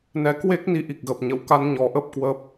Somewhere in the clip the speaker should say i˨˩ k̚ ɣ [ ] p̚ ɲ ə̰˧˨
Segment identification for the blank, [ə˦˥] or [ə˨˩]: ə˨˩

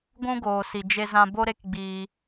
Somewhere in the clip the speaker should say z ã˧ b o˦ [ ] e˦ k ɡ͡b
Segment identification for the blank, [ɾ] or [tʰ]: ɾ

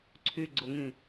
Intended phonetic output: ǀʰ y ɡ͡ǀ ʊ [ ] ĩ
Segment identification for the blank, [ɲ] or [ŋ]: ŋ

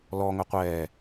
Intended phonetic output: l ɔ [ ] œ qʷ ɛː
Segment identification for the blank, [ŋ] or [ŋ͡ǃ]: ŋ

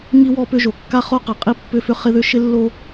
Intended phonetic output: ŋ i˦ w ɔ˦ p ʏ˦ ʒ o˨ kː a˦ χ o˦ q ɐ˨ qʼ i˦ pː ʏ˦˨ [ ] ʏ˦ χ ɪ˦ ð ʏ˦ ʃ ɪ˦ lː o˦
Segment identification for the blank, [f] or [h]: f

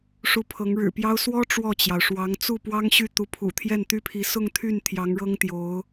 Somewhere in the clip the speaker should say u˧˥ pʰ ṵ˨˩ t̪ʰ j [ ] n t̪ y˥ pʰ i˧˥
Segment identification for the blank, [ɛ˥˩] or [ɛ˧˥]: ɛ˥˩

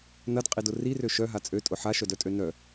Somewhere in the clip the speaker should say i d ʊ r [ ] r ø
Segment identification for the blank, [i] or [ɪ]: i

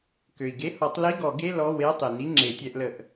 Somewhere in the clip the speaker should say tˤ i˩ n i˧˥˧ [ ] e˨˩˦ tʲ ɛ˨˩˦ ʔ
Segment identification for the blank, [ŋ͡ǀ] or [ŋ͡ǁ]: ŋ͡ǁ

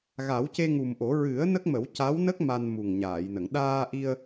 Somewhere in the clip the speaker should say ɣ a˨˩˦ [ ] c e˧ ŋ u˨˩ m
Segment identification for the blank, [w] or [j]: w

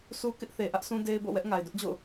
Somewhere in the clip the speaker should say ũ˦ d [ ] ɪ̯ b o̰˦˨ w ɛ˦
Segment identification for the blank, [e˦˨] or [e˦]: e˦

